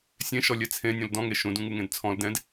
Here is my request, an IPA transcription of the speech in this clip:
sʲ ẽ ʃ ɔ lʲ ɛ t͡sʰ ẽ nʲ õ l d ɔ̃ ŋ e ʃ ũ d ũ ŋ u ŋ ẽ d t͡sʰ ɔ̃ l d ɛ̃ d

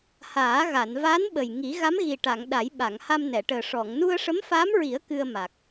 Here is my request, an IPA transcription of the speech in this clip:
h aː˨˩˦ ɣ a˨˩˨ n v aː˧˥ n ɓ ə˨˩ j ŋ i˨˩˦ ɣ a˧˥ m ɣ i˨˩ ʈ a˨˩˨ ŋ ɗ a˨˩˦ j ɓ a˨˩˨ ŋ h a˧ m n ɛ˨˩˨ ʈ əː˨˩ ʂ ɔ˨˩˨ ŋ n u˧ ə̯ ʂ ə˧˥ m f aː˧˥ m ɹ i˨˩˦ ə̯ k ɨ˧ ə̯ m a˨˩ k̚

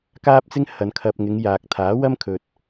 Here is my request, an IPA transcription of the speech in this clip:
k aː˥ p̚ t͡s ɪ˥ ŋ h ɐ˨ n kʰ ɐ˨ p̚ ŋ ɪ˨˧ ŋ j aː˨ k̚ t̪ʰ aː˨˥ w ɐ˥ m kʰ ɵ˨ t̚

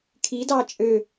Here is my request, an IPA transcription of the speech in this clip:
kʰ i d ɑ t͡ʃʼ ø

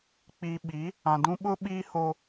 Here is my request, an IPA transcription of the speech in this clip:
k͡p i˨ ɓ i˨˦ | ã˨ d ũ˦ ɓ ʊ˦ ɓ iː˦ h o˦

